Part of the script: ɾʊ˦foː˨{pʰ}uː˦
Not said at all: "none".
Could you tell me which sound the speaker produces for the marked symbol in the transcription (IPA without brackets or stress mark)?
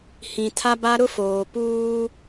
p